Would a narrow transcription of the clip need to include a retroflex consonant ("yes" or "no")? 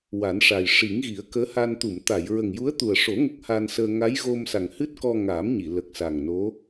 yes